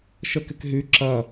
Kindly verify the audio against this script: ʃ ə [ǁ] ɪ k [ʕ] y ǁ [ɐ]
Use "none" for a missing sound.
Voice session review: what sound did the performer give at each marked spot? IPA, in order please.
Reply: k, ɦ, ɐ

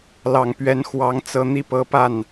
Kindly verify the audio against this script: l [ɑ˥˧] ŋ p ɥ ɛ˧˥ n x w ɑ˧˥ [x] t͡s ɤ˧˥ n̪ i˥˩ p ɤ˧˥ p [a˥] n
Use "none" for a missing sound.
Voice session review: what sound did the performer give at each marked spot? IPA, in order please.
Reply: ɑ˨˩, ŋ, a˥˩

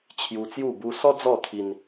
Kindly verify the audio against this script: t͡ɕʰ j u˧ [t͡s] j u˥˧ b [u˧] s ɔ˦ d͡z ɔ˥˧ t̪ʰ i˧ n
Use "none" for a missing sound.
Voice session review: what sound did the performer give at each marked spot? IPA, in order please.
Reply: t͡s, u˧

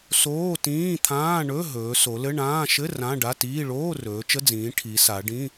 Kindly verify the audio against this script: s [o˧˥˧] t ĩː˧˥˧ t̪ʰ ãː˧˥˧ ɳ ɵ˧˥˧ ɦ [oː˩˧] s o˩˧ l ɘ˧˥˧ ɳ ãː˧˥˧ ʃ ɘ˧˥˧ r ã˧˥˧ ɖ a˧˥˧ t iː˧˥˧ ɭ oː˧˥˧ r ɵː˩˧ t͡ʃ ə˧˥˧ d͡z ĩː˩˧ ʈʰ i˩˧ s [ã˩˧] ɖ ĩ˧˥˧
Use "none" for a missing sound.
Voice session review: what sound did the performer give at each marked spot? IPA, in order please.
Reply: oː˧˥˧, ɵː˩˧, a˩˧

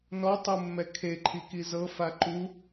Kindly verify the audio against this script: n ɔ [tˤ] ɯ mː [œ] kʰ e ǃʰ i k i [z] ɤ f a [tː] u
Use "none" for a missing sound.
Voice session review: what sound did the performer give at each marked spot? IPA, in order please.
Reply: tˤ, ɛ, z, ǃ

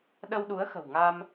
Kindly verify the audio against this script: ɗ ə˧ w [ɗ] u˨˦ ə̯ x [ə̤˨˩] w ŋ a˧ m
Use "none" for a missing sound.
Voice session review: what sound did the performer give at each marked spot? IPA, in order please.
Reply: ɗ, ə̤˨˩

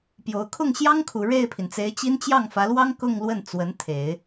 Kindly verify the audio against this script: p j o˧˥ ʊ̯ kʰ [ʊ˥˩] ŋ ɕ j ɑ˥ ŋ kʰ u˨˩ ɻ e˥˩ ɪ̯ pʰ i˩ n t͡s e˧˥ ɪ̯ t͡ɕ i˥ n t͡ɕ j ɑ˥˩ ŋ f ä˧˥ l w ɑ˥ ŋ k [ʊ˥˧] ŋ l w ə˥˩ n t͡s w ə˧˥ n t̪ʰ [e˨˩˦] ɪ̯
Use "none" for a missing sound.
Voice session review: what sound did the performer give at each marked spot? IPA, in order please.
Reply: ʊ˥˩, ʊ˥˧, e˨˩˦

